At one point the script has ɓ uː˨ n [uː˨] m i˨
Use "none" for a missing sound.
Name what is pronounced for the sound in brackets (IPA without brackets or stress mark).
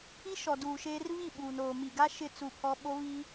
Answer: oː˨